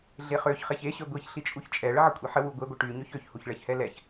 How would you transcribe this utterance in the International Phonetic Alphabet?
ɮeχøçχeç eɕø ɡʷiçɬit͡ʃʼuç t͡ʃʼɛ ɭəʕəkʷʼiħə wuɡʷeɡʷə ʈy ɲøçøçhuçɭɛç hɛlɛç

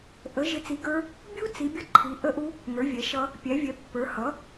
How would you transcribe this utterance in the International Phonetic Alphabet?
ʔə˨˥ ʒɪ˨˥t͡si˨˥ɡə˞˦˥ | bʲu˦˥ t͡si˨˥bʲʌ˦˥ ǃʰi˨˥ʔə˦˥ʔu˦˥ | ŋə˞˨˥vʲɛ˨˥ʃʌ˦˥ | pʲæ˨˥vʲɛ˨˥pːə˞˨˥ hʌ˨˥

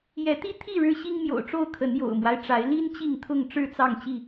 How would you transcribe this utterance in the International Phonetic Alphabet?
jɛ˨˦t̪i˦t̪ʰi˥˨ ɻɻ̩˦ɕi˦ŋmjo̰˨˩ʊ̯ʈ͡ʂo˥˨ʊ̯ kʰə˨˦njo̰˨˩ʊ̯mwa˦ɪ̯ ʈ͡ʂa˨˦ɪ̯ li˦n t͡ɕi˥˨ŋt̪ʰʊ˥˨ŋ ʈ͡ʂɻ̩˥˨t͡sɑ˥˨ŋt͡ɕi˥˨

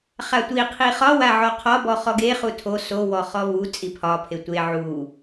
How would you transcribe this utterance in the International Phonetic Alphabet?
χatʷi qʰiχɒ waʕɔqʰɒ bɔχɔɡe χutʰo so wɔχɔvu t͡sʼipʰɒ pʰetʷe ʕu

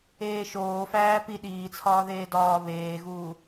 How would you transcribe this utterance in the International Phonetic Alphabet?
eːʃoːfæː pi ɗiːt͡sʰɒːðeː dɒː βeːɣuː

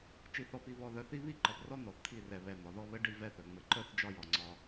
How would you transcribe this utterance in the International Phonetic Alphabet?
t͡ʃi˨θɔ˨pi˨ βɔ˨ðœ˨θi˦ βi˦˨ǃɔ˨prɔ˦ n̪ɔ˨θt̪ʰi˦˨rɛ˨βɛ˨ n̪ɒ˨ðɔ˦ βɘ˦ ɖi˦vɛ˦θœ˨ ŋ͡mɘ˨ǃœ˦θ d͡ʒɒ˦jɒ˨ŋ͡ǀɒ˦

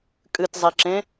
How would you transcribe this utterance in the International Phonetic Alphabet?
kʼɨtzˤiǁẽ

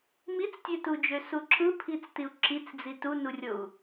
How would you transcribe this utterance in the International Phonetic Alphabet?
mit͡stʲøtud͡ʒø suǁɯ pʰit͡stiu̯ǁit͡sd͡zi tunurʲou̯

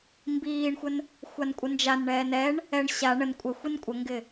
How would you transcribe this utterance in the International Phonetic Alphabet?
mbiːɳxʷən | xʷankʷʼənd͡ʒanɳɛːn ɛɳ | ɛɳ ɕa ɳən kʷʼəxʷin kʷʼəŋɡɪ

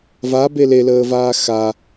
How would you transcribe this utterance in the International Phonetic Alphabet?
vabe leləːvaː xa

